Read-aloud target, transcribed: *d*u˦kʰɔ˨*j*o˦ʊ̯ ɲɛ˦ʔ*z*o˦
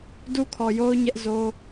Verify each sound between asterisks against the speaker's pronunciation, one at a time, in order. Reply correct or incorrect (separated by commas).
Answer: correct, correct, correct